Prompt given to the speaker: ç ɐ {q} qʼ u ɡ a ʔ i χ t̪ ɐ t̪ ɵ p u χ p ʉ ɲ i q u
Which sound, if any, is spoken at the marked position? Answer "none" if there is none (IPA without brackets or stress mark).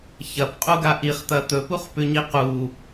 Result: p